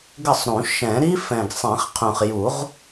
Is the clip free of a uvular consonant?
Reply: no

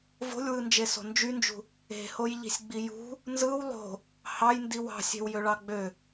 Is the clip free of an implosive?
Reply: yes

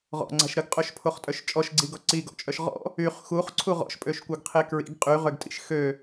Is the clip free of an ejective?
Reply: no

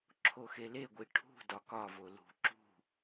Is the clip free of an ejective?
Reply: yes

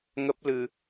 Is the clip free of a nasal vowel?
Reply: yes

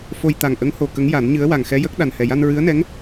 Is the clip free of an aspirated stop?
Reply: yes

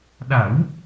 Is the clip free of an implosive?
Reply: no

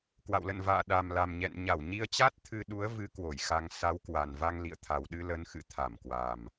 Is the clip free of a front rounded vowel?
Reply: yes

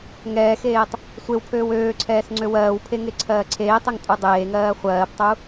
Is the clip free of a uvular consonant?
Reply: no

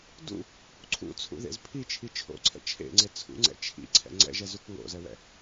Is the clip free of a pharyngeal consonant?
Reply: yes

